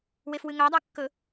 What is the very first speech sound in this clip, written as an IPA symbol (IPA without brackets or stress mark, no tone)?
w